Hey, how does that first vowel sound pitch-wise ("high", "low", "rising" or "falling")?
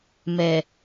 low